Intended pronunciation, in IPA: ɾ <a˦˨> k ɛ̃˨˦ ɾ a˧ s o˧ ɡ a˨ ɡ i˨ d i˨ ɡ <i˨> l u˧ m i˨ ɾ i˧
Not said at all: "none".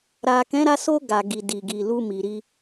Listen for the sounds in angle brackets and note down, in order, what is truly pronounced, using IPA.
a˨, i˨

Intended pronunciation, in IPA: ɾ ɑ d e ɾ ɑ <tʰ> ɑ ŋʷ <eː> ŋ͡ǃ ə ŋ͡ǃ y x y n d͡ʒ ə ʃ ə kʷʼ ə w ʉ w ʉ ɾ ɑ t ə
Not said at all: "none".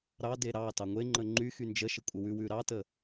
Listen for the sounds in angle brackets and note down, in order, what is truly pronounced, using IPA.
t, e

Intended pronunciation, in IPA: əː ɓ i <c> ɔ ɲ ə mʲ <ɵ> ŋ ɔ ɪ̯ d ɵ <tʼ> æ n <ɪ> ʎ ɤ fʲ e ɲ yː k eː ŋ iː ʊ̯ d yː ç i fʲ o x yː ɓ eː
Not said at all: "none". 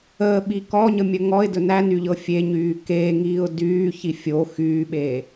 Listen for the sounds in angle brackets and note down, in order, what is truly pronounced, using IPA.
k, ə, n, y

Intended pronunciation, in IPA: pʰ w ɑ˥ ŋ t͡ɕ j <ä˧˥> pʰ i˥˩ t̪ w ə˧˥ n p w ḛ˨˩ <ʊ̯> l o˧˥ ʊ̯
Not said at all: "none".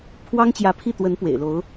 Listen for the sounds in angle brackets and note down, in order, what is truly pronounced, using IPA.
ä˧˥, ɪ̯

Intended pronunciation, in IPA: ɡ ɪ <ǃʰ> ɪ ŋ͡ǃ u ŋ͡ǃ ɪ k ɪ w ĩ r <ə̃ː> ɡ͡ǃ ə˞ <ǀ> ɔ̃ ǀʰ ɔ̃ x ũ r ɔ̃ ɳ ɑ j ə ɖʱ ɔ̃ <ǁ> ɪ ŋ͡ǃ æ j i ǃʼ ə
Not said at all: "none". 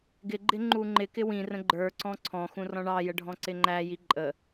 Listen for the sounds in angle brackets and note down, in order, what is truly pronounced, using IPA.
ɡ͡ǃ, ə̃, ǀ, ǀ

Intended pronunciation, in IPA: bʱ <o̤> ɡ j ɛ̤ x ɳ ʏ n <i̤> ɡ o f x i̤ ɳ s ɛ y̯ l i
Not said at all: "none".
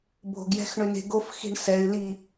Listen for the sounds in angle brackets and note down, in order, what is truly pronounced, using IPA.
o̤, e̤

